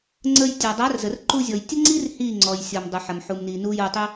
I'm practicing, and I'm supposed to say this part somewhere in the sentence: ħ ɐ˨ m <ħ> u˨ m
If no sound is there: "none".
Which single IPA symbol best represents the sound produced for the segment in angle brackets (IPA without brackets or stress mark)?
ħ